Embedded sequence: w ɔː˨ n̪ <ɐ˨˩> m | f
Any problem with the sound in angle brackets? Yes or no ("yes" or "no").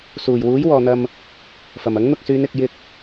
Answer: yes